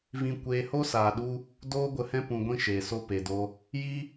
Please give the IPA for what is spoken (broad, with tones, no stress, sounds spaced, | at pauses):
v ĩ˦ kʷ eː˦ h o˦ s aː˨ ɗ u˧ | d oː˦ ɡʷ ə˧ h ɛ̃˦ p ũ˧ ɡʷ ĩ˦ ʃ eː˨ s o˦ p e˨ d o˧ | j i˦